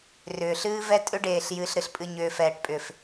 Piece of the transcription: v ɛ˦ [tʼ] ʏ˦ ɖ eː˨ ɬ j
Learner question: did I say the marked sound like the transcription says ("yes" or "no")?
yes